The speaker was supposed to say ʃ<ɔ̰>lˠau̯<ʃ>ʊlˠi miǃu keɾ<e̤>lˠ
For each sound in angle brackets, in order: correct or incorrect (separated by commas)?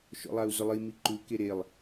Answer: correct, incorrect, incorrect